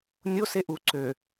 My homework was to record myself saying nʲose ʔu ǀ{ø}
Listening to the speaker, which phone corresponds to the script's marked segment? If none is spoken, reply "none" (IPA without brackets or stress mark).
ø